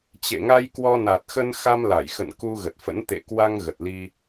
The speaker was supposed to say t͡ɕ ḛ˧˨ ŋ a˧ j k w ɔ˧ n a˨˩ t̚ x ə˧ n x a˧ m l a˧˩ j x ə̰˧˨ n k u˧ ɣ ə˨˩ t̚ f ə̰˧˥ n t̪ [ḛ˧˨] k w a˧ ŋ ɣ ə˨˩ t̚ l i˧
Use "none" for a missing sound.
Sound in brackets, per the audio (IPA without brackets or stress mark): ḛ˧˨